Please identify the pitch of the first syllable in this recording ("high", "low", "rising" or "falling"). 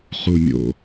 low